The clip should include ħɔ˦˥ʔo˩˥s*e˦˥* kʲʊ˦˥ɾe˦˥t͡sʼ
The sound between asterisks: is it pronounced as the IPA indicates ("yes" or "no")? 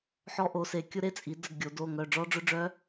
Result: no